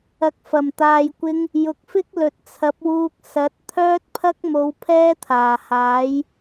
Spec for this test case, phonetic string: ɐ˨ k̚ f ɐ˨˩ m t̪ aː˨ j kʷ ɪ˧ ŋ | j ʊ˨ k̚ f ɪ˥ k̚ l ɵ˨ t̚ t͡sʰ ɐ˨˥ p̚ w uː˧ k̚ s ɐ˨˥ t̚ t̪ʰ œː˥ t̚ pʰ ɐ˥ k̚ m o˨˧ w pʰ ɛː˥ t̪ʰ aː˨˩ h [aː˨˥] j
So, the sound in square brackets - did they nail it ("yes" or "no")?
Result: yes